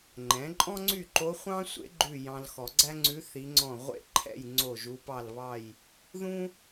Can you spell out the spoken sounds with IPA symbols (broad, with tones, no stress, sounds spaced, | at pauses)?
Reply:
ŋ͡ǃ ɛ̃˩˥ ǃʼ ɔ̃˥ ŋ͡ǀ y˥˨ ǃ o˧˥ χʷ ɑ̃˥ sʷ ḛ˧˥ ɡ͡ǃ ʉ˥˨ j ɑ̃˧ l x ɔ˨˩˦ ɡ͡ǀ æ˥ ŋ͡ǀ ʉ˧˥ θ i˧˥ ŋ͡ǀ ɔ̃˥˨ ʁʷ ḛ˥ ǃʰ ɛ̰˥˨ j ŋ͡ǀ o˥˨ ʒ u˧˥ p ɑ˥˨ l β ɑ˥˨ j | ð ũ˥